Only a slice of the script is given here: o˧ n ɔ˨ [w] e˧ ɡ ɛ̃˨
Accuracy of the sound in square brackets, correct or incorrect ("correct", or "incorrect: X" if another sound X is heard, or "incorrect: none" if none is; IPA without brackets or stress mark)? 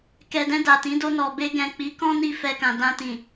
incorrect: b